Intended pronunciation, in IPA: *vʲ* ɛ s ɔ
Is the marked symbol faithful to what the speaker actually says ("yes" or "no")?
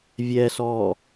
yes